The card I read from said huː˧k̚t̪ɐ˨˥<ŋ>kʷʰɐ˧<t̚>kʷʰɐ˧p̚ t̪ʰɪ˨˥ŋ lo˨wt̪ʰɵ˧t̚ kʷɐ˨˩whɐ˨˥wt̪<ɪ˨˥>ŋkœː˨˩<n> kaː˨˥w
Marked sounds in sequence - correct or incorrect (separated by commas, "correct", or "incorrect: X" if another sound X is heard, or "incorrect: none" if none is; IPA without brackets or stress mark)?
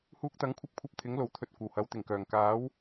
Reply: correct, incorrect: p̚, incorrect: ɪ˨˩, incorrect: ŋ